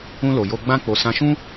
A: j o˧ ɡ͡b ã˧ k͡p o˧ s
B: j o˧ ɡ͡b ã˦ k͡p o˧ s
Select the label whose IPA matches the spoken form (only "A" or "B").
B